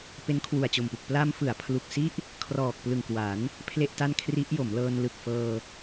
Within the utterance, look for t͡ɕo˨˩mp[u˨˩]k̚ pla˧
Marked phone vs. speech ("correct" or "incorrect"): correct